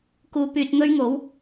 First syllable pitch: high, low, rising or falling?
low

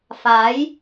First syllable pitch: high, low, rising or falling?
rising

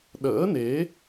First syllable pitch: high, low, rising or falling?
rising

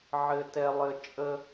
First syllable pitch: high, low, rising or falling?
high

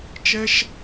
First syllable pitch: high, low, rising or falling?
high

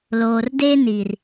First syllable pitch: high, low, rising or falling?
low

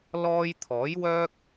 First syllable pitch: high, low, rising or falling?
high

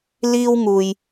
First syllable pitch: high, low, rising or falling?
high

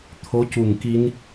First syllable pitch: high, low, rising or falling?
rising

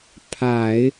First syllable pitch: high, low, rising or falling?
low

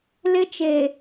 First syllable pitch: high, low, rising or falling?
high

